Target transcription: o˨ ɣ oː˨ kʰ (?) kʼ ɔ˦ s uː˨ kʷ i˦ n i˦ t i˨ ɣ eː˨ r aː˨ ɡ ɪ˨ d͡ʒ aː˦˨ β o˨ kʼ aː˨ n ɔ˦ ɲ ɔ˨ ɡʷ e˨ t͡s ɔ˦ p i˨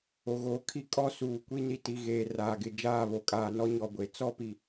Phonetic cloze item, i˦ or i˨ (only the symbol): i˦